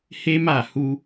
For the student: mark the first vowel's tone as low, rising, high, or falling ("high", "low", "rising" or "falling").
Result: high